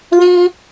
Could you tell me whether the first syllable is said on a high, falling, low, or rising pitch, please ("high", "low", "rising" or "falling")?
high